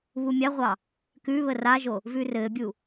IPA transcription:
β u mʲ a ʁʷ ɑ | k ʉ β ə r a ʒ o | v ʉ r ɘː bʲ u

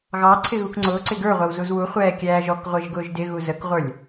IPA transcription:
ɣ ɑ ǀʰ ɪ ɣ u k ŋ͡ǀ ʊː ǀ ɪ ɡ ə˞ ʁʷ æ w z u z w u χʷ ɛː kʲ æː ʒ ɔ k ʁʷ ɪː ʒ ɡ ʊː ʒ d ɪ ɣ u z ə k ʁʷ ə˞ lʲ

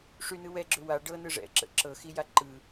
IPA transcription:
ʂ y n ɯ w ɛ ɡ͡ǁ ʏ w a ɖ ɤ n ɯ ʐ ɛ̰ ǁ ə̰ ǁ ɤ x i j a ǃ ɯ

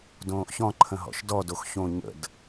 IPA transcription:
d õː ʔ ç ɔ̃ ǃʰ ə̃ ɦ ɔ̰ ʃ d ɔ d o x ç õ ɲ ə̰ d

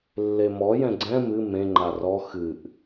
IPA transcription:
lː e m ɔ j ɛ̃ ɡ͡ǀ ɛ̃ m ɨ m ẽ ŋ͡ǃ a r ɔ x ɨ ʔ

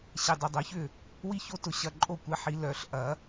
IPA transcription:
ɕ e˨ dˤ e˨ dˤ œ˨˩˦ ç ʏ˥˩ | w i˦ ç o˦ t ʊ˨ ɕ ɐ˨ ǃʼ o˥˩ kʷ ɛ˦ ħ i˨˦ l œ˨˩˦ ɬ ʔ ɐ˨˩˦

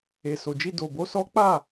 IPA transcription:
e˨ s o˨ d͡ʒ i˧ d o˨ b o˨˦ s ɔ˦ k͡p a˦˨

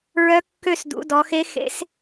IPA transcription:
ɹ œ˧˥ kː ø˦˨ s d ṵ˩˧ d ɔ˩˧ x e˧˥ x ḛ˧˥ s

